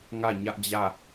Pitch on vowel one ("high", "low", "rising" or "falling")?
falling